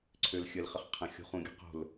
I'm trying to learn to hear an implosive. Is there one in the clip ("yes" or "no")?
no